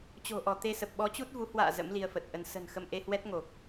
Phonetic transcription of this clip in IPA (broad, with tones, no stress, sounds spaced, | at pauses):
t͡ɕ o̤˨˩ ʔ ɔ˧˩ t̪ e˧ s ə˨˩ p̚ ɓ ɔ˨˦ t͡ɕ u˦˥ t̚ v u˨˦ h w a̰ː˧˨ z ə̰˧˥ m l i˧ ə̯ f ə˨˩ t̚ ʔ ə˧ n s ə̤˨˩ n x ə˧ m ʔ e˧ h w ɛ˦˥ t̚ ŋ o˨˩ k̚